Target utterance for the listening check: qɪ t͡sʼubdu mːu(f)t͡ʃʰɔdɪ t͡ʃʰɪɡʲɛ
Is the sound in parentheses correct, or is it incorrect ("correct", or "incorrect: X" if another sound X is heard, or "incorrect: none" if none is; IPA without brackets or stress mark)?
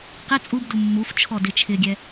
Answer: correct